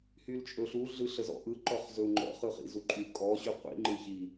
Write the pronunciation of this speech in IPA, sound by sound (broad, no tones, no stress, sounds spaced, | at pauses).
h y l t͡ʃʼ ɵ ɬ u ɮ ɯ ɬ ə z ɔ̰ ʔ ɯ ǃ ɔ χ z ɵ u̯ ŋ͡ǃ ɔ̰ χ ɯ χ ḭ z u ǃʼ y kʼ ɔ ɕ y qʷ ḭ ŋ͡ǃ ɯ ç i